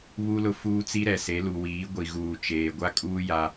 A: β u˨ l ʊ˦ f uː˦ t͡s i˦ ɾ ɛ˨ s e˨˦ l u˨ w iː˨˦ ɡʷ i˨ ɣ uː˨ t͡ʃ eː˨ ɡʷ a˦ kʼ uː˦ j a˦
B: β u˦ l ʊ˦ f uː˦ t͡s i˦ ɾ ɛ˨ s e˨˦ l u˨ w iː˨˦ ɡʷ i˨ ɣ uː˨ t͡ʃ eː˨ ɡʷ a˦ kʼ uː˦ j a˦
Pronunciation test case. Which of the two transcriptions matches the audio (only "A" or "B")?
B